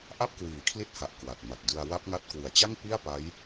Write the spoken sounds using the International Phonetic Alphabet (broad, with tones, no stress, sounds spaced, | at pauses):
ʔ a˥˩ p̚ k w iː˩˦ kʰ l i˦˥ t̚ h a˨˩ ʔ k w a˨˩ t̚ m a˨˩ t̚ d ɯ˧ a̯ w a˦˥ p̚ ŋ a˦˥ t̚ k w ɯ˨˩ a̯ t͡ɕ a˥˩ ŋ p i˥˩ a̯ p a˦˥ j